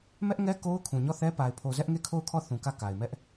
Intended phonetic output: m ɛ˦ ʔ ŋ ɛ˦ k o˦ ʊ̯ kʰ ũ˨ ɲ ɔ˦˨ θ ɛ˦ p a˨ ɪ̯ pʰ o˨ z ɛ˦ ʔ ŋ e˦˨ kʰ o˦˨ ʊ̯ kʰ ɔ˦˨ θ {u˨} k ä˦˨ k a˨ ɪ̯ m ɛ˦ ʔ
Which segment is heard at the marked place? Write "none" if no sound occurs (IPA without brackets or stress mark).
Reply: ũ˨